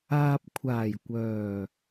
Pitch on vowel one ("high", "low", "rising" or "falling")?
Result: low